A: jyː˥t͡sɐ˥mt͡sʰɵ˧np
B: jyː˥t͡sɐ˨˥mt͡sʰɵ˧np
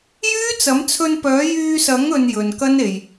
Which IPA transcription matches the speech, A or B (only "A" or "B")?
B